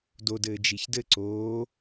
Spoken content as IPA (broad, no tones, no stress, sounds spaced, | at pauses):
d o d ɘː d͡ʒ i ç d ɘ ǀ oː